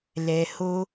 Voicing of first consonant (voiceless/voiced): voiced